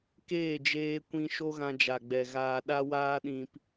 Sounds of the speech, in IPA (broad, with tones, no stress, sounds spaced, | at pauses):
k eː˦˨ d͡ʒ eː˧ kʷ ĩ˧ ʃ o˦ ɣ ã˧ d͡ʒ a˨ ɡ͡b ɛ˨ ɣ aː˨ ɗ a˧ w aː˧ ɗ ĩ˨ p